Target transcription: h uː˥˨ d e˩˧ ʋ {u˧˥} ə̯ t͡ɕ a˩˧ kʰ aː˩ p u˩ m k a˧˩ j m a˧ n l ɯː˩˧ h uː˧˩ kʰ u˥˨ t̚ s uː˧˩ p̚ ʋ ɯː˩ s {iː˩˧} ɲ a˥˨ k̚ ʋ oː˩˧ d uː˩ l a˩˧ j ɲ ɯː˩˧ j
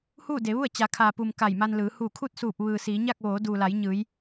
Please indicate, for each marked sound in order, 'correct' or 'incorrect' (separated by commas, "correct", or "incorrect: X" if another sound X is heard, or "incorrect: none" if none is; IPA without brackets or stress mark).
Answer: incorrect: u˥˨, correct